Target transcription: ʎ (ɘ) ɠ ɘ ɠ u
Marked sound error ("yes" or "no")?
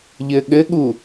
no